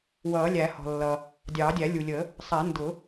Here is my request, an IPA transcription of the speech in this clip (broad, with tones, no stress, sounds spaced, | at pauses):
w ʌː˨˩˦ lʲ æ˨˩˦ h ɔ̤˩ lː ʌ˩ | dʲ ɑː˨˩˦ dʲ æ˨˩˦ lʲ u˩ lʲ ə˨˩˦ | sˤ ɛ˨˩˦ n d ʊ˨˩˦